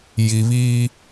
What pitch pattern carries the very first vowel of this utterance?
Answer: low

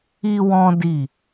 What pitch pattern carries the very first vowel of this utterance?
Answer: high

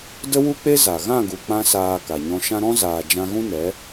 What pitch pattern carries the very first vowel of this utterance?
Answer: high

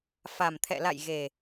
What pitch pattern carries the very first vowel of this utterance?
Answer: low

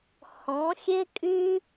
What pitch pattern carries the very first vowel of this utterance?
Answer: rising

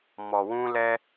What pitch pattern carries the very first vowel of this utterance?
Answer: low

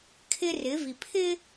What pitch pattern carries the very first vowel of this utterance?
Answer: high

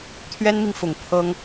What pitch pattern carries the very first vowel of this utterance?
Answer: high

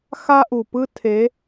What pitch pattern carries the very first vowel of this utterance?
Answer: high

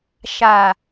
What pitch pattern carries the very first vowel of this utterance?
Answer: low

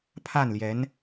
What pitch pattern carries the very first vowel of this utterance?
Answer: falling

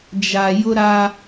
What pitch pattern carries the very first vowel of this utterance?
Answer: low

